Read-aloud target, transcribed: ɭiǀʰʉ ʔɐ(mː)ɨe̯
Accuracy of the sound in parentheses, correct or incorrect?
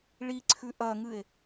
incorrect: ŋ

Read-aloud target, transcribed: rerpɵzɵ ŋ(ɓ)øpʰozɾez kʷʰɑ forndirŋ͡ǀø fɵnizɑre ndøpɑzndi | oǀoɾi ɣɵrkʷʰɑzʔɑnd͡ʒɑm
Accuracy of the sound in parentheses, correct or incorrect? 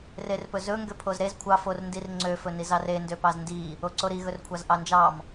incorrect: ɡ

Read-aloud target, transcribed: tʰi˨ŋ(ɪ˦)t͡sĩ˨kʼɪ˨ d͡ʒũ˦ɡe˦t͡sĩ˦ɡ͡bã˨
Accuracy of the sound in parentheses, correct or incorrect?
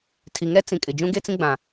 incorrect: ɛ˦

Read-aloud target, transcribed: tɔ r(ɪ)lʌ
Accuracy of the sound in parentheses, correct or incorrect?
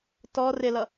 correct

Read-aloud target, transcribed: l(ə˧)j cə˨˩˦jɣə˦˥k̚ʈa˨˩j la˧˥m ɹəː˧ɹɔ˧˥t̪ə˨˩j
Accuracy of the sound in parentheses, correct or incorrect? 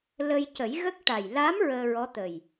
correct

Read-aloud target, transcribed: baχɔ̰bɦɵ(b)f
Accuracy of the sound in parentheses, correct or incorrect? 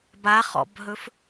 incorrect: none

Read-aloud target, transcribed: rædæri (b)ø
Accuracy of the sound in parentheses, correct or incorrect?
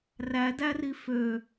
incorrect: f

